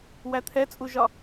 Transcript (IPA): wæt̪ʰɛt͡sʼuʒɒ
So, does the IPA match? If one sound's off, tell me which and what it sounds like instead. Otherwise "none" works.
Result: none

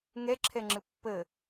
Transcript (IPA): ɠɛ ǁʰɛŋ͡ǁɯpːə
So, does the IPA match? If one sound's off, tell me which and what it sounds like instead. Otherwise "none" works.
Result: ɠ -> ŋ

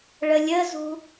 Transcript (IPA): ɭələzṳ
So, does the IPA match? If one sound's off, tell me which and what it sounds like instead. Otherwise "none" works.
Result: l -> lʲ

